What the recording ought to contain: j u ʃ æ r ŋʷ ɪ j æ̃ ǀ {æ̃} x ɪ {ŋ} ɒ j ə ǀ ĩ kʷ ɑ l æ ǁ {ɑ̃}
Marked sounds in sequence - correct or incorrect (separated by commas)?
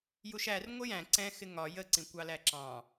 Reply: incorrect, correct, correct